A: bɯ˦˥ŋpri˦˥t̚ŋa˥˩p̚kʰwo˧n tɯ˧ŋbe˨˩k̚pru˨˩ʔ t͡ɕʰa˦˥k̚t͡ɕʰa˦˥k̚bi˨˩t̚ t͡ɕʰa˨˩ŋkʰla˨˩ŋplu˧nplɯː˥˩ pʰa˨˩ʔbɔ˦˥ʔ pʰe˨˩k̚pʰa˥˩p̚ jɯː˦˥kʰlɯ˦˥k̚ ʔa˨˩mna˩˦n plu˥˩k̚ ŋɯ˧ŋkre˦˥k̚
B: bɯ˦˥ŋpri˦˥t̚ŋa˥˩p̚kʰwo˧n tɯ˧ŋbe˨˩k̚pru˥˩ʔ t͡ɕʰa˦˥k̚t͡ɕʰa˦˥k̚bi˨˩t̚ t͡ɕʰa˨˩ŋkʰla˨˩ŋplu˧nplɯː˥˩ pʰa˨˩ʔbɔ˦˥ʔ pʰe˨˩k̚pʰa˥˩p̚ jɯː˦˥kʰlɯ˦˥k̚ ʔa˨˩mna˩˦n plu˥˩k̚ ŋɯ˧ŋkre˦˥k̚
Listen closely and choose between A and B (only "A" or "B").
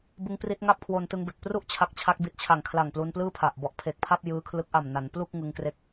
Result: B